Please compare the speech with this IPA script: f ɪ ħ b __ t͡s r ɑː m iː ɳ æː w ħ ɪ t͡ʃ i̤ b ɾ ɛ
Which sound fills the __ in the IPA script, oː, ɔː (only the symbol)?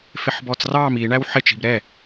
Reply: ɔː